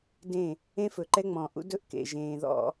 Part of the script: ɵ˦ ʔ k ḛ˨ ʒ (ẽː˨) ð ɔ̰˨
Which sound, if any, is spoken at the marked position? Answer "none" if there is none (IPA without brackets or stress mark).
ẽː˨